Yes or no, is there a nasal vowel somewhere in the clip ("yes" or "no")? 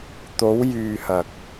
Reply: no